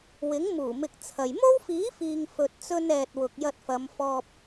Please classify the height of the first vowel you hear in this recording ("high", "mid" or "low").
high